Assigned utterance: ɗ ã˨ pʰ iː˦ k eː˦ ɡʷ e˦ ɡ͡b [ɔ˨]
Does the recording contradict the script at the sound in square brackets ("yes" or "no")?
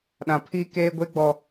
no